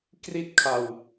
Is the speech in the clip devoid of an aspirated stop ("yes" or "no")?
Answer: no